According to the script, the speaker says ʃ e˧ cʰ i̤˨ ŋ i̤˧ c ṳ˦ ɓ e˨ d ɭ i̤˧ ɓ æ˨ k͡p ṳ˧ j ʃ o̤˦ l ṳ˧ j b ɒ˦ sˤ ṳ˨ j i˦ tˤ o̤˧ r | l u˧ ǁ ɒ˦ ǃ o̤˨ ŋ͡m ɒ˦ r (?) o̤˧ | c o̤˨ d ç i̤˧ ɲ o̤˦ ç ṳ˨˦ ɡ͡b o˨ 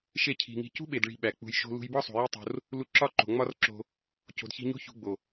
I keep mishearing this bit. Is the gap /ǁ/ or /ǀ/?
ǁ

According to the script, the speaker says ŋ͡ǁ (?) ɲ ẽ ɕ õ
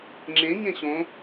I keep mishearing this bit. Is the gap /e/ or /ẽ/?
ẽ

